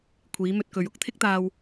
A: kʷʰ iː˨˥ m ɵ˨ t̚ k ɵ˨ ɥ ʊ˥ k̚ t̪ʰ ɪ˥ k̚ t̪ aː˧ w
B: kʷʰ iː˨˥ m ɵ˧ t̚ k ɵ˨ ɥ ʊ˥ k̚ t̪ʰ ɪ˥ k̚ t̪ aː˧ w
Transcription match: B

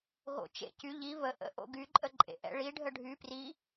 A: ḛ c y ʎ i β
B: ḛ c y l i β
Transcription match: A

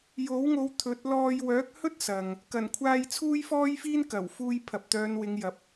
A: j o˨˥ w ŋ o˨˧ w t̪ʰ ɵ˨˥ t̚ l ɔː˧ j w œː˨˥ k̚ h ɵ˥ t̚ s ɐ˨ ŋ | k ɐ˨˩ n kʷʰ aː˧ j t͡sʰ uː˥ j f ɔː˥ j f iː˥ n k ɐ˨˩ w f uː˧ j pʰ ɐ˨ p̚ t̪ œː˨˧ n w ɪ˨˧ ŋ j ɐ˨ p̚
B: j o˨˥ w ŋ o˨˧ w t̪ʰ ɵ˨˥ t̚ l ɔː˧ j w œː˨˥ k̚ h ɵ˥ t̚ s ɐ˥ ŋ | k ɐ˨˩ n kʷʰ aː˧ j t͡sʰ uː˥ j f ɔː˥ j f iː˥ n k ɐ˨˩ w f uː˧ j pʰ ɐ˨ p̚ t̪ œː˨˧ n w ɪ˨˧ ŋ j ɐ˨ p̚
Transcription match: A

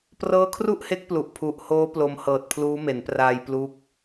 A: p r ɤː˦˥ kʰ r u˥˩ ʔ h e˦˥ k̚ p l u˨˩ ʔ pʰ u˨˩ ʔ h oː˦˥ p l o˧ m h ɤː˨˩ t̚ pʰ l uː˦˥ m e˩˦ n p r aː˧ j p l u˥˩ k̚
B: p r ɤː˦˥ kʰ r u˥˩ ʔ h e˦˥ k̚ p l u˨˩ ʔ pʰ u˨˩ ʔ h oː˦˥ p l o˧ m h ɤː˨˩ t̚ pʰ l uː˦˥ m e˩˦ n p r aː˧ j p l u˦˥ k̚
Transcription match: B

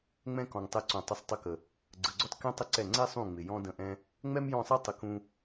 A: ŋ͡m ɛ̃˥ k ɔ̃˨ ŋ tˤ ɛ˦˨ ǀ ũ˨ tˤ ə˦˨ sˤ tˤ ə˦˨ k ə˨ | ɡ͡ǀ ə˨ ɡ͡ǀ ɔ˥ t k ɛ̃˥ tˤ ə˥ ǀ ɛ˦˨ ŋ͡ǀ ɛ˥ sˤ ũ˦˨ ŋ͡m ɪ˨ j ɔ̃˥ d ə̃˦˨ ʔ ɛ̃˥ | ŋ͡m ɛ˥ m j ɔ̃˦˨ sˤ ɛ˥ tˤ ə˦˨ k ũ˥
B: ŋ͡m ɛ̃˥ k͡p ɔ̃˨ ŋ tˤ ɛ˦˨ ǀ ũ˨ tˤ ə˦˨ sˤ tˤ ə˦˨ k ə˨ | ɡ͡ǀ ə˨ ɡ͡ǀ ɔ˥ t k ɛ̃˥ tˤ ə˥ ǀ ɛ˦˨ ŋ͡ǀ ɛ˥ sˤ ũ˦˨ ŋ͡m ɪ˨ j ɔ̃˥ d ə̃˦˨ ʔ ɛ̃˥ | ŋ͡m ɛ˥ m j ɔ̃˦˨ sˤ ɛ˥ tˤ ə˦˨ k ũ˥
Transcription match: A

